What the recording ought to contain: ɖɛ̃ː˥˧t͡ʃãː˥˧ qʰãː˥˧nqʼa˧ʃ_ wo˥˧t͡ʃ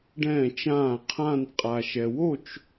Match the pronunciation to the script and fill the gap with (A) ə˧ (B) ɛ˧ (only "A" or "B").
B